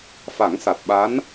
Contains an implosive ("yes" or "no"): yes